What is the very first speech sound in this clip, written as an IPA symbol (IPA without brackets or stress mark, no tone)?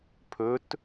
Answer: pʰ